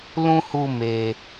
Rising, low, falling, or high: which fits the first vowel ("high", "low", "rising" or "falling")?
high